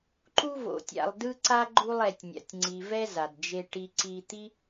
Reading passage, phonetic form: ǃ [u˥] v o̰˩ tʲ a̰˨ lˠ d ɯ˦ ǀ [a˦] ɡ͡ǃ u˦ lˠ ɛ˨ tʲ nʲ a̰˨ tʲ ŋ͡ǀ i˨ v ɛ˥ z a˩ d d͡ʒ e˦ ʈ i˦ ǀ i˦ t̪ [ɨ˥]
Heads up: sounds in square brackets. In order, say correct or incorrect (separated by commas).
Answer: incorrect, incorrect, incorrect